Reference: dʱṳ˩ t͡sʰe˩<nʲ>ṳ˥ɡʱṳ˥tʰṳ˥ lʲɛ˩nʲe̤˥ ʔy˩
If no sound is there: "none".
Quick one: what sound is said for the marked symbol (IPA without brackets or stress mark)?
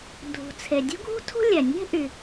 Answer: dʲ